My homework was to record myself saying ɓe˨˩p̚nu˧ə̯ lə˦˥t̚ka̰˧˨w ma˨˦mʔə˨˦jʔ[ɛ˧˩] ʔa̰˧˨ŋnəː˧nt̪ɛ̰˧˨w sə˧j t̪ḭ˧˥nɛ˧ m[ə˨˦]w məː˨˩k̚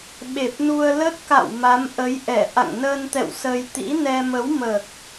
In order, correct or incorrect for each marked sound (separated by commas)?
correct, correct